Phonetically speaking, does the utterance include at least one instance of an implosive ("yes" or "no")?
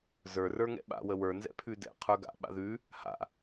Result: yes